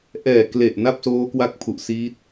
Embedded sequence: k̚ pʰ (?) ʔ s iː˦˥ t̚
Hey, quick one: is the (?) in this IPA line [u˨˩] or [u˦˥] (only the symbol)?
u˨˩